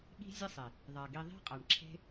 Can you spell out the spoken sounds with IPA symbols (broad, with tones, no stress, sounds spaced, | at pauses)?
ɠ i̤˦ zʲ ɘ˦ sˤ e˨ | ðˤ a˨ ɡ i˧ ðˤ e̤˦ qʼ a˨ ɳ ǁʰ e̤˦